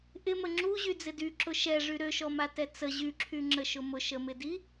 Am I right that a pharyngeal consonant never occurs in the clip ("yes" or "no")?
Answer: yes